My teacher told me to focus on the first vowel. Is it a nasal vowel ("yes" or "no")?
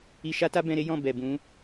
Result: no